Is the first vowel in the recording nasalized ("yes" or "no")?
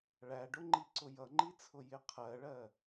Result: no